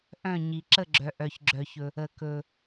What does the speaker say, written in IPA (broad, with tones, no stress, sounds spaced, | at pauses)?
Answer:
ʔ œ̃˥˨ ɲ i˨ ǁ ə˥˨ ɡ͡ǁ œ˨ ʔ œ˨ ç ɡ͡ǁ œ˨ ç ɵ˨ | ə˨ k ɵ˨